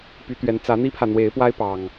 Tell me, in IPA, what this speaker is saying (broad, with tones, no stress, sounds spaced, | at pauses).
p y˨˦ t̪ ɥ ɛ˨˦ n t͡s ä˨˦ n̪ i˦ pʰ ä˨ n̪ w e˨˦ ɪ̯ p w a˦ ɪ̯ p ɑ˨˩ ŋ